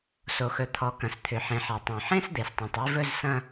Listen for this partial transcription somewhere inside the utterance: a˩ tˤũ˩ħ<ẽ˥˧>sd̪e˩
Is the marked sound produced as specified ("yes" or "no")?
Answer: yes